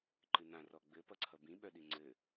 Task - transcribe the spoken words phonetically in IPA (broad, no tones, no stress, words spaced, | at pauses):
ǃɨnã rɔɡ͡bɘ pʌǀʰʌbĩ ɓœɗiŋ͡ǀɘ